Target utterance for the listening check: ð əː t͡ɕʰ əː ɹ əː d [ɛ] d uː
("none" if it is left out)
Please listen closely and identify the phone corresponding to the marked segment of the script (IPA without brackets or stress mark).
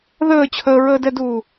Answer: ɛ